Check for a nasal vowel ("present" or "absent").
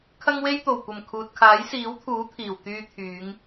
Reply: absent